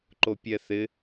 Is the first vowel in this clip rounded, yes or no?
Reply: yes